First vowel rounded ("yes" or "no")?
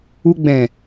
yes